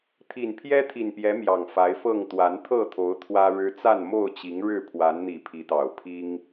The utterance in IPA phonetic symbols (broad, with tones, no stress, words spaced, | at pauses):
t̪ʰi˨˩npʰjɛ˦t̪ʰi˨˩npjɛ˨˦ mjɑ˨˩ŋfa˨˦ɪ̯fɤ˥˨ŋ t̪wa˨˦nt̪ʰɤ˥˨t̪ʰo˨˦ʊ̯ t̪ʰwä˦ɻɻ̩˦ t͡sa˥˨nmo˥˨ʊ̯t͡ɕi˨˦ŋ ɻɻ̩˥˨pʰwa˨˦nn̪i˨˩ pʰi˨˦t̪ɑ˨˩ʊ̯pʰi˦ŋ